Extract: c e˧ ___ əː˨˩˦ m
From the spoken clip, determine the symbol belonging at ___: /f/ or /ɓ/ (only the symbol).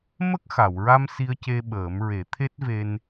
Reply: ɓ